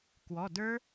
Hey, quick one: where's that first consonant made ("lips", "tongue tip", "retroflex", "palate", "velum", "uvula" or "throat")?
velum